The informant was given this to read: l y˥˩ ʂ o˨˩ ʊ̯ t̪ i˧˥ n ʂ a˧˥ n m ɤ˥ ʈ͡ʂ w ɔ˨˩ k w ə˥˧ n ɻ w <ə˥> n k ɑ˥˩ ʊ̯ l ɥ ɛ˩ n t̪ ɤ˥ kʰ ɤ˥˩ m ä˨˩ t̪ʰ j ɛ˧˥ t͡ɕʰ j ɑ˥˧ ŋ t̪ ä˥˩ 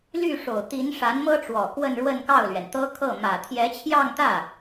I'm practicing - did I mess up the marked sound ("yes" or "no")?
yes